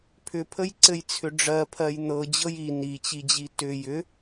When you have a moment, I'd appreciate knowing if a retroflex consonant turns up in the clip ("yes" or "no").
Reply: yes